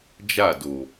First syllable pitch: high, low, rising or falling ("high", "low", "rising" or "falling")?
falling